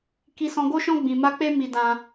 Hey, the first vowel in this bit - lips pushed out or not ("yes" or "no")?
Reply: no